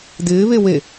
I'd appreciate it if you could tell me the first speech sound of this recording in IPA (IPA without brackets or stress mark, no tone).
d